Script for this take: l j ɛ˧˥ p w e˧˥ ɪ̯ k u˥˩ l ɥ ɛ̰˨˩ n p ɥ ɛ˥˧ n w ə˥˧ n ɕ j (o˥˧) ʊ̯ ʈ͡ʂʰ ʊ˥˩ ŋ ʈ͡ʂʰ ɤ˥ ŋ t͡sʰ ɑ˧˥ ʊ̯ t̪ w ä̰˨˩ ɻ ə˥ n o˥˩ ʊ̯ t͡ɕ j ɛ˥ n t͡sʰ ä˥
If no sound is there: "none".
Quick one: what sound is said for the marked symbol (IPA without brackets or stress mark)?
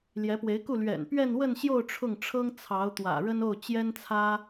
o˥˧